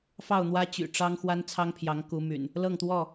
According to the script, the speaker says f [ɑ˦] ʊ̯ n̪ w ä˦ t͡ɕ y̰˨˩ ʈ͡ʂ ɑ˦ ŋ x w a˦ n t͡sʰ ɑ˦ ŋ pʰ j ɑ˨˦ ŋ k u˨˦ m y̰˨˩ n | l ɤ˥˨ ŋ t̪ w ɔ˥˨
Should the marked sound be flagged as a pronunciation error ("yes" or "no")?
yes